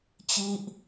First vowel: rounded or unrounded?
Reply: unrounded